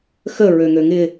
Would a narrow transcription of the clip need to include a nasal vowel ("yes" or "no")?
no